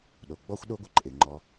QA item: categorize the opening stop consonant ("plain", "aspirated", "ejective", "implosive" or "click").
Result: implosive